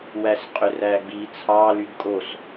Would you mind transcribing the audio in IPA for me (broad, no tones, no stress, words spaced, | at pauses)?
wæsqʼøræɡ͡bi t͡sʰɑ lydkʼos